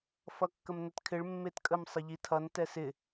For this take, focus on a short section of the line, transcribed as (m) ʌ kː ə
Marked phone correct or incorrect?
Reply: incorrect